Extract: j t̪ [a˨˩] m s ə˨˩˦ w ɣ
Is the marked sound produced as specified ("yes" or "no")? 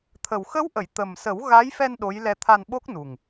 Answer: no